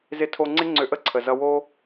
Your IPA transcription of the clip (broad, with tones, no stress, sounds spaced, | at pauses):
z ɪ˧ tʰ o˧ ŋ͡ǀ ɪ˦ ŋ͡ǀ ʏ˧ ʔ ə˦ ǀʰ ə˨ z ʌ˧ w o˦